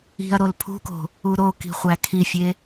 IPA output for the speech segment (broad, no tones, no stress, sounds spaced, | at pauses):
i̤ ɐ̯ ɾ o l pʰ ṳ k o̤ | u ɾ o k i̤ χʷ æ kʰ i fʲ e